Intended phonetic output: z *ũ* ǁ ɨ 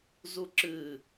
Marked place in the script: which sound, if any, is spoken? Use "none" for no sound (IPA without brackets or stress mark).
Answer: u